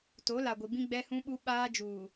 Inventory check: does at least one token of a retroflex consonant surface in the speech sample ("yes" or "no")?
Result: no